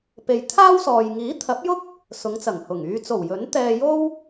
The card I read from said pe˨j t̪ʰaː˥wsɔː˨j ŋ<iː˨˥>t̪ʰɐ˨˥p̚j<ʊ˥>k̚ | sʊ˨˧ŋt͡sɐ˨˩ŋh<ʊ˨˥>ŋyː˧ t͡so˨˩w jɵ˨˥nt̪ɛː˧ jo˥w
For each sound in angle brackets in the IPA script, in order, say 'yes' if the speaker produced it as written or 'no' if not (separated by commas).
yes, yes, no